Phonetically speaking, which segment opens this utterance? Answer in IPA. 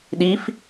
ɗ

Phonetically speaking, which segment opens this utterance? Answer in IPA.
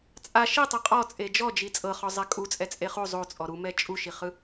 t͡sʼ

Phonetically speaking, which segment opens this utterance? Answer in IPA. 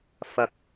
f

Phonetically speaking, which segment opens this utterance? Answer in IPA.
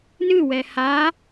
n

